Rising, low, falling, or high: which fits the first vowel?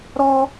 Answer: high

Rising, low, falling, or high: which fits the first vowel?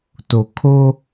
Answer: low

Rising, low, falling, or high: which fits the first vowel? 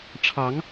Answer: rising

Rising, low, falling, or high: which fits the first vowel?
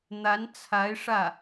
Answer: rising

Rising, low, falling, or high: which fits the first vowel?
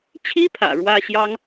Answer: high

